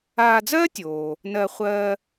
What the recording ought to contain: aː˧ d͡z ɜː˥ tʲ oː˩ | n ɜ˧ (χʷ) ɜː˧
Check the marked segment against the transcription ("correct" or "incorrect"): correct